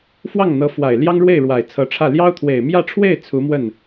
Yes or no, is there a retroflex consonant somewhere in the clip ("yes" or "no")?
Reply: yes